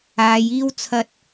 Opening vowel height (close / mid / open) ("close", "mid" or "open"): open